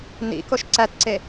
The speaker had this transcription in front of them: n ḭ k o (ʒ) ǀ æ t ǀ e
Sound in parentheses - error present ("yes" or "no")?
yes